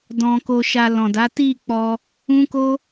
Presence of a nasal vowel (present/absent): present